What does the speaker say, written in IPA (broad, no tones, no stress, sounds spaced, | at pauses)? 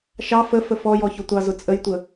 ʃ ɑ f ə f ə f ɔ j ɔ ç ʊ tʷ ɑ z ʊ t͡sʼ ə j tʷ ə